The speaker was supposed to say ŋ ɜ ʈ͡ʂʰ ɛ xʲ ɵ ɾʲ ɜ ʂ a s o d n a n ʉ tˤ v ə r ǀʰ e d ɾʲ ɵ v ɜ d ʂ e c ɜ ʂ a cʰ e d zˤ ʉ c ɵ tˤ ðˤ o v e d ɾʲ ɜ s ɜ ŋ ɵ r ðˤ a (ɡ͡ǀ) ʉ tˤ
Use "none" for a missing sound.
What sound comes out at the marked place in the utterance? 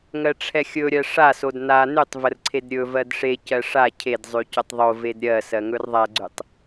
ɡ͡ǀ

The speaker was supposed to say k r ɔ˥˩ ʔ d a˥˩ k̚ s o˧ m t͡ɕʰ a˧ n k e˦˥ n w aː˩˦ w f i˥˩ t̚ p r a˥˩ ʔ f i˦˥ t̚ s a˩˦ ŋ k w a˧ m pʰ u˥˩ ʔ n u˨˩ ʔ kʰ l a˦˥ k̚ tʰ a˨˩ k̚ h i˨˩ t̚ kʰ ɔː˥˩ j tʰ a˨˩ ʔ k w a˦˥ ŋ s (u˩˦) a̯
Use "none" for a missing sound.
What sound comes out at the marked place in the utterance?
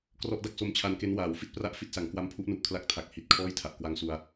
u˧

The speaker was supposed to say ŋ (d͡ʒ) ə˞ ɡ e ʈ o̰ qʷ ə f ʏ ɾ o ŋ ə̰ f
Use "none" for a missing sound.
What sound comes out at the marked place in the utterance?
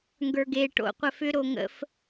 ɡ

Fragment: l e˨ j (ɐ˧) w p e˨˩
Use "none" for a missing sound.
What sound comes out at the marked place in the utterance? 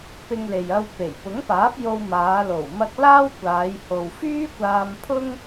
ɐ˧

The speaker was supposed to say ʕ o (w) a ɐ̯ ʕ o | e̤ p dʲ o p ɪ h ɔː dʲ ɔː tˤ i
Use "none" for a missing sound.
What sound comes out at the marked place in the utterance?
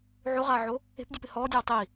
ʁ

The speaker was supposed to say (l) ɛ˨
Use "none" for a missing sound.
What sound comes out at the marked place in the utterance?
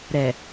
ɾ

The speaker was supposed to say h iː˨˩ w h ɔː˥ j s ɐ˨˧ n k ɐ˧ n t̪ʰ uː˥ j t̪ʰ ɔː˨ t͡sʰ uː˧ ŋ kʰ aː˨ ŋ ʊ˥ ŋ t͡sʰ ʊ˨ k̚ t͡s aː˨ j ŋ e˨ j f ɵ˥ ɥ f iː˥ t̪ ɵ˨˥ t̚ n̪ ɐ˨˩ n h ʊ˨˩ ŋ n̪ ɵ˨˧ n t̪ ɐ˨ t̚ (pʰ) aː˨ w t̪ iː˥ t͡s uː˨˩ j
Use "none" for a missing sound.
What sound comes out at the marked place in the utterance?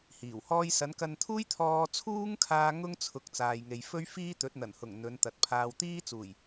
pʰ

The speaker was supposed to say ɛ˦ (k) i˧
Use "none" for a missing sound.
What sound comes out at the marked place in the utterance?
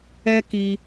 k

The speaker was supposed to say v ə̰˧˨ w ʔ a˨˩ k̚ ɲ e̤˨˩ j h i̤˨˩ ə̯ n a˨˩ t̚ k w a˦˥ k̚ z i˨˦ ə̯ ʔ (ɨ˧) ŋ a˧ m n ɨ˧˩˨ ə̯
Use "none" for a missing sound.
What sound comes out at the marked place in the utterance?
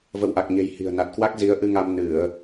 ɨ˧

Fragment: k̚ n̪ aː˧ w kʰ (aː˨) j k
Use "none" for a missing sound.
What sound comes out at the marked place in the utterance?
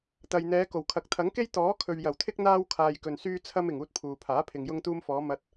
aː˨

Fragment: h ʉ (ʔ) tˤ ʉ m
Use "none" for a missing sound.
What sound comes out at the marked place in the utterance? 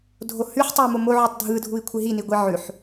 ħ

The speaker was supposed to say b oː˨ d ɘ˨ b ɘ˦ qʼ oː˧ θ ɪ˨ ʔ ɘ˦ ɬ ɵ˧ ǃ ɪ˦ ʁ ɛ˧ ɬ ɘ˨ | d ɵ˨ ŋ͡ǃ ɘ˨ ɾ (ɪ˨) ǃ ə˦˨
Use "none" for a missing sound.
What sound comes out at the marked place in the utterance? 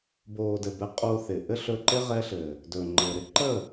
ɪ˦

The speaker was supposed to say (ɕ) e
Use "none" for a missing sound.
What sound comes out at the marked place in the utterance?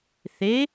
θ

